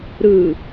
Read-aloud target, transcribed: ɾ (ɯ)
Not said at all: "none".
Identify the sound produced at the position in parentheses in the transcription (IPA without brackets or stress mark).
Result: ɯ